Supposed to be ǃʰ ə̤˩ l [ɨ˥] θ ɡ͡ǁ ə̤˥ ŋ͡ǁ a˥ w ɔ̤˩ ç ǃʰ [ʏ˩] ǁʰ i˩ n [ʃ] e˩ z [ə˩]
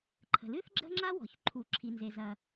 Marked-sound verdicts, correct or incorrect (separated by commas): correct, incorrect, incorrect, incorrect